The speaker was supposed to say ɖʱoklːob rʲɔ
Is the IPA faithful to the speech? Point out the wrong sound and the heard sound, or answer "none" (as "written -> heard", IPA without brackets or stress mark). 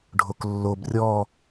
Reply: none